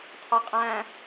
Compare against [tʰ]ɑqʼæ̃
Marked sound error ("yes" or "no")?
no